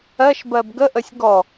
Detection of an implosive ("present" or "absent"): absent